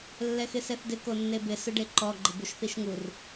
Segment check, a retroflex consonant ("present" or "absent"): present